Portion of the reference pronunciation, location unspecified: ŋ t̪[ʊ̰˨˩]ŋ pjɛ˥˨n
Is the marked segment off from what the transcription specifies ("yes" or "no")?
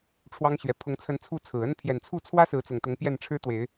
yes